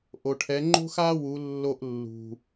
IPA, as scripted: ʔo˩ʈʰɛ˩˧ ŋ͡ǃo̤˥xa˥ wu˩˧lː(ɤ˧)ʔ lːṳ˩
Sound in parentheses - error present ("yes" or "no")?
yes